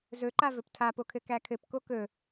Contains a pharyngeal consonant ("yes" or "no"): no